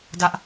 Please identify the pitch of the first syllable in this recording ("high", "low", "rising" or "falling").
high